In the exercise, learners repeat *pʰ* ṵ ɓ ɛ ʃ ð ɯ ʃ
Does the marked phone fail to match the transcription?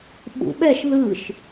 yes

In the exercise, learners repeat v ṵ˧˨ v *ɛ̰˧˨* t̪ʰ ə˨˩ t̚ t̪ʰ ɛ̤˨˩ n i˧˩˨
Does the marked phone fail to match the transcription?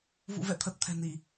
no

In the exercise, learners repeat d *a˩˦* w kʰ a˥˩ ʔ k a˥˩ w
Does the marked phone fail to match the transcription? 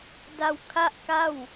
yes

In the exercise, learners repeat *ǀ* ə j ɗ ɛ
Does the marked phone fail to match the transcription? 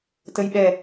yes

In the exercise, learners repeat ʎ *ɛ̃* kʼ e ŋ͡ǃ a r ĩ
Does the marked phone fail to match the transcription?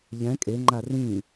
no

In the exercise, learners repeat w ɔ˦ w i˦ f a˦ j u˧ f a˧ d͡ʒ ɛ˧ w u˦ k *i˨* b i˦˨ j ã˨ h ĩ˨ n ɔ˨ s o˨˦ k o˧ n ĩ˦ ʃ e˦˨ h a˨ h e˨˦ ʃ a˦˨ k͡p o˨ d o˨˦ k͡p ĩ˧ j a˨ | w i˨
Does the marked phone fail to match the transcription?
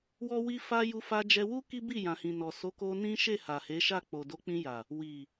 yes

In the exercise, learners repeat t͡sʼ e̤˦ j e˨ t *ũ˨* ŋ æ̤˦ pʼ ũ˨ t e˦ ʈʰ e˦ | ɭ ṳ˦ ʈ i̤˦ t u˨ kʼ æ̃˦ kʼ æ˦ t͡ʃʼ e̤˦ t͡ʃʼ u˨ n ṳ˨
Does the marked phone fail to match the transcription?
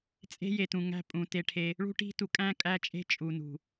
no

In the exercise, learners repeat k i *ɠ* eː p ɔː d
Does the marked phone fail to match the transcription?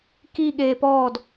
no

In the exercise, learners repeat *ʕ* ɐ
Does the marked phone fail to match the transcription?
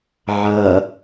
no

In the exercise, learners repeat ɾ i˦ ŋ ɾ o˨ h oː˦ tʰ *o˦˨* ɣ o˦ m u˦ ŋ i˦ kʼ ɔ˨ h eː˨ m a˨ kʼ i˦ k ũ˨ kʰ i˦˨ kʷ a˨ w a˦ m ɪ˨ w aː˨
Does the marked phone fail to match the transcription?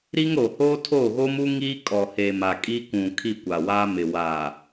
no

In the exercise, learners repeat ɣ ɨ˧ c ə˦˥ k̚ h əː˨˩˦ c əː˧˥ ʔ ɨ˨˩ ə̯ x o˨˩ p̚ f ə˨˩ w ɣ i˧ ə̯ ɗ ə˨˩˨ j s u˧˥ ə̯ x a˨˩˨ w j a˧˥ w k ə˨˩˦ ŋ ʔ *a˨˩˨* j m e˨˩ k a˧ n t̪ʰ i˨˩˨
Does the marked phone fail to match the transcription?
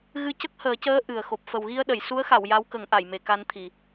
no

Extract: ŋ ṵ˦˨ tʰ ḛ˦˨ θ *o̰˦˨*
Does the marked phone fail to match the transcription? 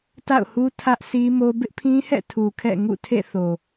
yes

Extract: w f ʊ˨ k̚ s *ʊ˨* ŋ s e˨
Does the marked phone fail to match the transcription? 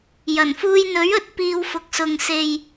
no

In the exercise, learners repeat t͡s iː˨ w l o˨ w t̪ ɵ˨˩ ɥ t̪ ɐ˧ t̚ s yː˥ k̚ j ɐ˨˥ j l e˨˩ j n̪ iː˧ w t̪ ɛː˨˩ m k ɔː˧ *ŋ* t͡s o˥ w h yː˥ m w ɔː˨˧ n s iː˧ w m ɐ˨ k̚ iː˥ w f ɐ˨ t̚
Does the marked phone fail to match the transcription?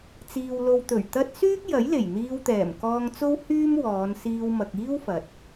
no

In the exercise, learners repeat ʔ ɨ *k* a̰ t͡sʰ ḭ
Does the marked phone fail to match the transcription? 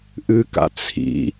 no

